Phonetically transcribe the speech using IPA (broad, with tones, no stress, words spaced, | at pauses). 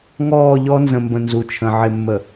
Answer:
ŋɔː˦˨ʎɔ˦nzə̃˨mbə̃˨ nzu˨t͡ʃʰə̃˨ ʕɪ˨mːə˨